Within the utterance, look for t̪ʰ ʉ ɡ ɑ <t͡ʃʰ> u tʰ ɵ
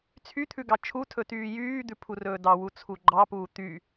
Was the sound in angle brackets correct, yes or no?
yes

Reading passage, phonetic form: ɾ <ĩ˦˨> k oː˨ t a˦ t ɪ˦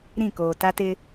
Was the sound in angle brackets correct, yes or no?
yes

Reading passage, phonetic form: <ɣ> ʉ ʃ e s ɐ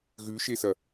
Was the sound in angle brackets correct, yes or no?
yes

